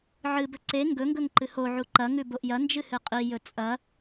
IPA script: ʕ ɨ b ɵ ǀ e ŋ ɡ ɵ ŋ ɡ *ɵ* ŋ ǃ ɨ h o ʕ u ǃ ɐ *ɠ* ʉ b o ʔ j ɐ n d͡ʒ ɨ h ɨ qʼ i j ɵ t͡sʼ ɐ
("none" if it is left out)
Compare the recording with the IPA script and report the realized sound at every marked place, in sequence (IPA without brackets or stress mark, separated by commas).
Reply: ɵ, ŋ